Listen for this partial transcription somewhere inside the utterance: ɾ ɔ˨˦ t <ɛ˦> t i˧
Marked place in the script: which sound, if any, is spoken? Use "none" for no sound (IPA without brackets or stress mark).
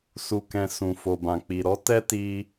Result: ɛ˦